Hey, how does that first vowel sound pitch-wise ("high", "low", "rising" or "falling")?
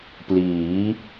rising